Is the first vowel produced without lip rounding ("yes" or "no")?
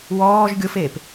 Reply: no